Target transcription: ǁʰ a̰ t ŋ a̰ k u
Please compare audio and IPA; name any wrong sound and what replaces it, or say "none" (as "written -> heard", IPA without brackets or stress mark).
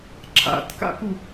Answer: ŋ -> k